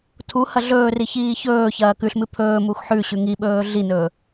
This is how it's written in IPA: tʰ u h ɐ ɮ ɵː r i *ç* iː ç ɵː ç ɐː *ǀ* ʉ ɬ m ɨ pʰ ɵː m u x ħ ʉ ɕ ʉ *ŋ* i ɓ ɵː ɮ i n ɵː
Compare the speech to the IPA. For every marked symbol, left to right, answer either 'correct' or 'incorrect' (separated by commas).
correct, incorrect, correct